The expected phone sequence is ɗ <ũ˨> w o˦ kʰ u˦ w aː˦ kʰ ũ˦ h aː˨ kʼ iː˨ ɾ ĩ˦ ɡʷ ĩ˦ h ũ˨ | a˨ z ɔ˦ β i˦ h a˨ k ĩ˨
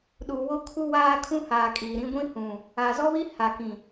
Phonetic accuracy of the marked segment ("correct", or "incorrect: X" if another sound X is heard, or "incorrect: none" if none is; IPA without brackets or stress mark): incorrect: u˨